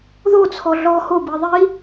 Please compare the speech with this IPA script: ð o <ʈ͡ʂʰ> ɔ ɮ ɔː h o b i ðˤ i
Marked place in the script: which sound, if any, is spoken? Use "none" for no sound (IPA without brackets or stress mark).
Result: t͡sʰ